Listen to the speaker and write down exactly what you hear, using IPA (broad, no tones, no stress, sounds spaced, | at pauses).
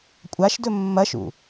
kʷʼ a ʃ d ɵ mː ɐ ʃ ṵ